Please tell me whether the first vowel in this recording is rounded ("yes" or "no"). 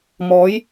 yes